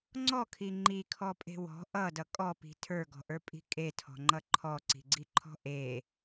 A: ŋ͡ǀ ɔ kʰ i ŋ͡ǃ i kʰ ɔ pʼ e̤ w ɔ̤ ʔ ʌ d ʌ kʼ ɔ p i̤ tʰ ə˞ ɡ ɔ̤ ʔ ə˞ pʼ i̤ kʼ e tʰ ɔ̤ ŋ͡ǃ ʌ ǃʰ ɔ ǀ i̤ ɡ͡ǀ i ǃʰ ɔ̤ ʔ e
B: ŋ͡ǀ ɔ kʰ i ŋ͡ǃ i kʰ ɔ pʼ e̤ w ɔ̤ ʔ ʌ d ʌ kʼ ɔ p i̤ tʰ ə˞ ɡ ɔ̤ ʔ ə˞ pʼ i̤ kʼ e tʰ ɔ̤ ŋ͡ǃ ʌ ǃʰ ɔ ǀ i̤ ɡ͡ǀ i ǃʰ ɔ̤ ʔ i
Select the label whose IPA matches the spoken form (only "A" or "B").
A